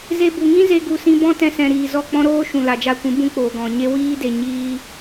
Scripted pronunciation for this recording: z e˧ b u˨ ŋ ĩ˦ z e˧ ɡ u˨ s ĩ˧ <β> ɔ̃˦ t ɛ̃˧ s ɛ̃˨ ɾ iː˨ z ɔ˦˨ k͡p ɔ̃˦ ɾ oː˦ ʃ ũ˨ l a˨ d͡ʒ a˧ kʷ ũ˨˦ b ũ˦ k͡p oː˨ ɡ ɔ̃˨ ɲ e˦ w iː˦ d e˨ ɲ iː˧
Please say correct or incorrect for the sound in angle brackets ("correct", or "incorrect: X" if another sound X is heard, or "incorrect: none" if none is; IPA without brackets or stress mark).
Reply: incorrect: b